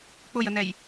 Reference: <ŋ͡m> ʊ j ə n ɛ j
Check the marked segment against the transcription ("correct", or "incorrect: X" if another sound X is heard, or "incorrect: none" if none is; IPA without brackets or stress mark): incorrect: k͡p